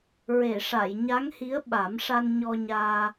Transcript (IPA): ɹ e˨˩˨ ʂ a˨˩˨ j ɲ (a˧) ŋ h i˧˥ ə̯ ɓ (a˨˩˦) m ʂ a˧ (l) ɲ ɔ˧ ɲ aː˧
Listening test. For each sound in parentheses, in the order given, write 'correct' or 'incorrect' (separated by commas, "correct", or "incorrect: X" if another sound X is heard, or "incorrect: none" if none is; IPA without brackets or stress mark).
incorrect: a˧˥, correct, incorrect: n